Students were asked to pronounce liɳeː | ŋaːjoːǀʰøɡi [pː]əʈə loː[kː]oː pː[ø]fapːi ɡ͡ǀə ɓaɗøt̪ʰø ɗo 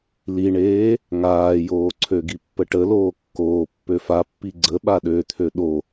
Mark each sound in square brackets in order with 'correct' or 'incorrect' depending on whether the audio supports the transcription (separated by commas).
correct, correct, correct